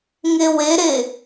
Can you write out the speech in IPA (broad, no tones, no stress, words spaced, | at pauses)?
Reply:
ŋeweɾe